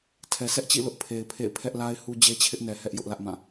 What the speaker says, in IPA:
tʰ ɛ˨ s ɛ˦ ʔ t͡ɕ ḭ˦˨ l ʊ˦ ʔ pʰ e˨ ɪ̯ pʰ ḛ˦˨ ɪ̯ pʰ ɛ˦ ʔ l a˦ ɪ̯ h u˦ d͡ʑ e˦ t͡ɕʰ ɪ˦ ʔ n ɛ˨ h ɛ˦ ʔ j ʊ˦ ʔ l ä˦ ʔ m ã˦˨

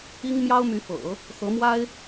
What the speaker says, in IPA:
i˥ ŋ m j ɑ˥ ʊ̯ m y˧˥ f ɤ̰˨˩˦ | x ɤ˧˥ m w a˥ ɪ̯

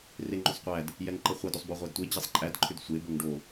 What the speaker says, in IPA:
r e ŋ͡ǃ ʏ sˤ qʷ æ d | j ɛ ŋ ǃ ə χʷ æ d o sˤ b o ʁʷ æ d tʷ e d͡ʑ ɛ sˤ ǃʼ æ d ǃʰ ʏ d sʷ e b o ŋ ɖ o

